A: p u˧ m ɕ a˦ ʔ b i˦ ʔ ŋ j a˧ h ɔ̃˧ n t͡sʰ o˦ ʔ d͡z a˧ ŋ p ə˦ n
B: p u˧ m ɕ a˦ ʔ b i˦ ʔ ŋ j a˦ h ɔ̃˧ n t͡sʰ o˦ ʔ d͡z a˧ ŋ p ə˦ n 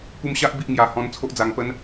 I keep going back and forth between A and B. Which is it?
A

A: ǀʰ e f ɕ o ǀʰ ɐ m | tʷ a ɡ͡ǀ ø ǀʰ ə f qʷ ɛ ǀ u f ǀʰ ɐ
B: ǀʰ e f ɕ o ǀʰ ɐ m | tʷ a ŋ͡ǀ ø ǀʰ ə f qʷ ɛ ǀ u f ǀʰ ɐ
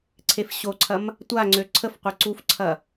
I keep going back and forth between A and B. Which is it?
B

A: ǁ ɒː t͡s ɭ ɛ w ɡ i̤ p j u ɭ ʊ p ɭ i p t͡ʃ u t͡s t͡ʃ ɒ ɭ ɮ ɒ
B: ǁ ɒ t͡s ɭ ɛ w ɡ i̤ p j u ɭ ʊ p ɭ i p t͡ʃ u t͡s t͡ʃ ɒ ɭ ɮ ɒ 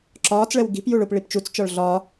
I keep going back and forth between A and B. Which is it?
A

